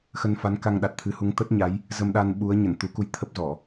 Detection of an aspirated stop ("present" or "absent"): present